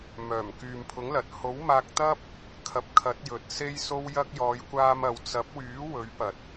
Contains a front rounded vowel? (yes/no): yes